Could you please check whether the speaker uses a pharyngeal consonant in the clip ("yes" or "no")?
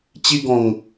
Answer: no